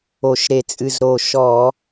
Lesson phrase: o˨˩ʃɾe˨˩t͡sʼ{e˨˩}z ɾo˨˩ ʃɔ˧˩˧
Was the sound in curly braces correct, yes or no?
no